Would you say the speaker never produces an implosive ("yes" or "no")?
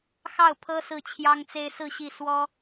yes